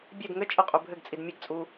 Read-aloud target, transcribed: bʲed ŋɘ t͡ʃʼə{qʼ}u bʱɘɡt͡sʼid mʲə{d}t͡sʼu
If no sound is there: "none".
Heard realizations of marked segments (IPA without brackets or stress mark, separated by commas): qʼ, ɡ